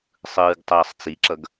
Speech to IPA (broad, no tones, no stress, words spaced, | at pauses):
sˤɯːɡtˤʌːsˤt͡siǁʌɡ